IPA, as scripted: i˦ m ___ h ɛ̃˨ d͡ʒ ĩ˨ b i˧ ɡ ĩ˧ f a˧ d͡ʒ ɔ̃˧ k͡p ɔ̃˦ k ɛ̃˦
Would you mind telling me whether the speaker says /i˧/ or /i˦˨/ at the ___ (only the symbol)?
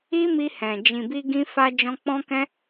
i˧